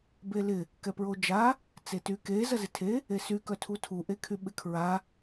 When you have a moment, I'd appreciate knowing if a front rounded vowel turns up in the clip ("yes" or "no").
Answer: yes